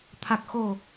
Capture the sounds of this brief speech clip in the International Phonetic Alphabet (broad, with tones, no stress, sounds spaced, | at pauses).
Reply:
t̪ʰ a˨˩ k̚ x o˨˩